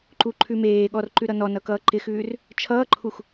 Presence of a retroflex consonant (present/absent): absent